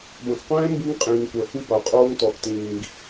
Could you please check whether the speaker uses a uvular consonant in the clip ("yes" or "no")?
yes